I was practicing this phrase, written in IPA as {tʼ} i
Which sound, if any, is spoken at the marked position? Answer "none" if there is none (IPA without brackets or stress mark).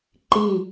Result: ǃ